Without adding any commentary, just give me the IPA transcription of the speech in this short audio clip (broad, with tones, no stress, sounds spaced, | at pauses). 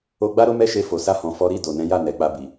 o˧ ɡ͡b a˦ ɾ o˦ m ɛ˦˨ ʃ e˧ f o˨ s a˧ h ɔ̃˨ f ɔ˨˦ ɾ i˦˨ d o˨ n ɛ̃˨˦ j a˦˨ n ɛ˨ k͡p a˧ b i˨